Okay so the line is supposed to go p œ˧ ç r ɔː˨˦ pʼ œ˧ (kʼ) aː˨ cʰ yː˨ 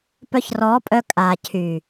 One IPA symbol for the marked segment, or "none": kʼ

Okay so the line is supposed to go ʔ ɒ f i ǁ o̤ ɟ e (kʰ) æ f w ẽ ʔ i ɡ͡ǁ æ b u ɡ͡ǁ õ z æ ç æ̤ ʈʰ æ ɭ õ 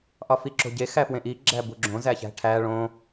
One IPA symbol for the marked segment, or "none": x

